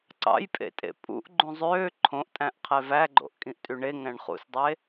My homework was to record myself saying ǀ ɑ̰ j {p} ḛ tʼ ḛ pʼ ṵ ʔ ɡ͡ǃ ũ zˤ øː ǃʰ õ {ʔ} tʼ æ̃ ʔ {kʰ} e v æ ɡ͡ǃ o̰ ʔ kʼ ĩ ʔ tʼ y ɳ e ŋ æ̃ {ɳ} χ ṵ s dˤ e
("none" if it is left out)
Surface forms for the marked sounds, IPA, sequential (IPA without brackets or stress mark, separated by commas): pʼ, ʔ, qʰ, ɳ